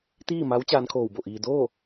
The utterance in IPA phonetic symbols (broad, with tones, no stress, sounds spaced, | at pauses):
t̪ iː˥˨ m a˧˥ w t͡ɕ aː˧˥ n kʰ oː˧˩ w b o˧˩ ʔ iː˧ d oː˥˨